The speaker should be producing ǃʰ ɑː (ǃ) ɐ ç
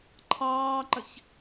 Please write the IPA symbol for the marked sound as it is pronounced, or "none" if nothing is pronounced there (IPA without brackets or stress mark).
ǃ